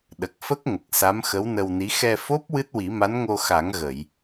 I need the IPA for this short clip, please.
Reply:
ɗ ə˨˩ k̚ f ə˦˥ k̚ ŋ ə˨˩ k̚ s a˧˥ m x ə˧˥ w n ə˧ w n i˧˥ x ɛ˧ f o˦˥ p̚ w ɨ˦˥ t̚ w i˨˩˦ m a˧˥ n ŋ o˧ x a˨˩˦ ŋ ɣ ə˨˩˨ j

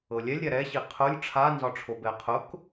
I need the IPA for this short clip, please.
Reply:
ɤ lʲ ɛ lʲ ɾʲ a ɾ ɛ ɕ i qʰ ʊ lʲ ʈ͡ʂʰ a n z ɒ ʈ͡ʂʰ o b ɛ qʰ ʊ k

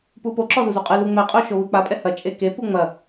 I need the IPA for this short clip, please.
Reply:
p u p o ǁ ɔ z u z u qʼ ɨ l u ŋ͡m ɛ qʼ o ʃ o β ɨ k͡p a pʼ ɛ h ɐ t͡ʃʼ e k e p u ŋ͡m ɐ

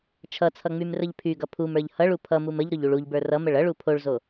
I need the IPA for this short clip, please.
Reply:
t͡ʃʰ ʌ t͡sʰ ʌ ŋ͡m y m r ə ʎ pʰ y ɡ ʌ pʰ u m ə˞ ʎ h ʌ ɭ u pʰ ʌ m u m ə ʎ ɾ ʊ ʎ u ɭ u ʎ b ə˞ r ʌ m ə ɭ ʌ ɭ u pʰ o ɭ z o

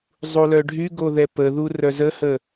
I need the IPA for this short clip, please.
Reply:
zˤ u l œ ɖʱ y ɡ o ð ɛ p ə ð u r œ z ə h ə

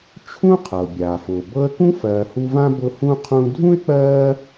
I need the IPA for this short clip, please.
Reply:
t͡ʃʰ ũ˦ qʰ ɤ˩ bʲ aː˩ f ʊ˩ b ɤ˦ ə̯ k ũ˥ f ɜː˨ h u˦ v ã˥ b ʊ˦ h ũ˥ qʰ ũː˦ dʱ ũ˥ ɪ̯ k͡p ɜː˥

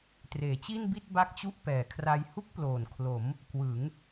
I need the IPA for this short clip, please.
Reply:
t r eː˩˦ t͡ɕ i˥˩ n b i˥˩ t̚ b a˥˩ k̚ t͡ɕ u˥˩ ʔ p ɛː˩˦ kʰ r a˧ j h u˥˩ k̚ p l oː˨˩ n kʰ l o˩˦ m | k w ɯ˩˦ ŋ

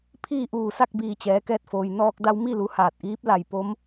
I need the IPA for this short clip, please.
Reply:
pʰ iː˥˨ ʔ uː˧˩ s a˥˨ k̚ b iː˧˩ t͡ɕ ɛː˩˧ k ɛː˧ t̚ f oː˩ j n ɔː˧ k̚ d a˧ w m i˥˨ l u˩ h aː˧˩ t̚ ʔ iː˧˥ p̚ l a˧˩ j p o˧˥ m

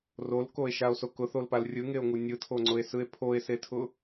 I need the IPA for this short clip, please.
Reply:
r o l k o e̯ ʃ a o̯ s o k ʊ θ o l p a l rʲ ɯ ŋ e o̯ ŋ u nʲ ɯ tʰ o ŋ͡ǀ ʊ e̯ s ɯ e̯ pʰ o e̯ s e tʰ ʊ

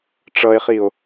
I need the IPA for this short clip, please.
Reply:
ʈ͡ʂ ʌ e̯ χ i o̯

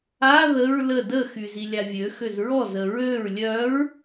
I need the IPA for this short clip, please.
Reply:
a ð ə ɹ l ə d ə x y z i lʲ a vʲ ø x ø z ɹ ɔ z ə ɹ ø ɹ lʲ œ ɹ

